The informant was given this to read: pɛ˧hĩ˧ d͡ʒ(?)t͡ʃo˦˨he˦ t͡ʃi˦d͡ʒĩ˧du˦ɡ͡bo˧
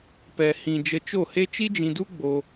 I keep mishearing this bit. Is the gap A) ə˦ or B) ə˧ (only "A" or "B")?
B